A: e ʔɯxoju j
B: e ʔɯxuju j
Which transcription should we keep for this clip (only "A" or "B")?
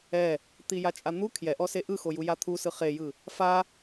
A